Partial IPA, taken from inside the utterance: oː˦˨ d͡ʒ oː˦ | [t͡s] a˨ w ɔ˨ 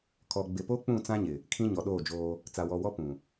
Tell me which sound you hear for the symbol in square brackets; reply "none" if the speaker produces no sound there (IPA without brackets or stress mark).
t͡s